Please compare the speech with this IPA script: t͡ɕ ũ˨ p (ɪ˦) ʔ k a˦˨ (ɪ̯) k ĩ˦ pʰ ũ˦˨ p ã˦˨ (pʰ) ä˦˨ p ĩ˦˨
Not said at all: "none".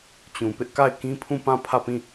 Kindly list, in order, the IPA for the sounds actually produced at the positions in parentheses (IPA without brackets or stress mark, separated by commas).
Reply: ɪ˦, ɪ̯, pʰ